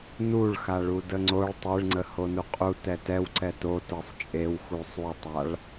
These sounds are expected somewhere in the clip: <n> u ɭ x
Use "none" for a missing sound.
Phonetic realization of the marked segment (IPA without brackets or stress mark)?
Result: n